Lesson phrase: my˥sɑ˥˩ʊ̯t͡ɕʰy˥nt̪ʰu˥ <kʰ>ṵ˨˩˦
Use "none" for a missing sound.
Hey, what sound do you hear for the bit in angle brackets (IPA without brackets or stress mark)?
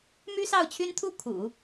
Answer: kʰ